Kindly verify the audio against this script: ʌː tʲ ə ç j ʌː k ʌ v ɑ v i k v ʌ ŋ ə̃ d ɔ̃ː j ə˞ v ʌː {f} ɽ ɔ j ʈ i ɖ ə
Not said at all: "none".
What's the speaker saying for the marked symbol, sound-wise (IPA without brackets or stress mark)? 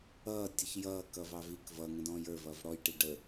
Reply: v